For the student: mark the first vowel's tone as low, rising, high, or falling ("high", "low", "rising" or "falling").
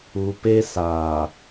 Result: low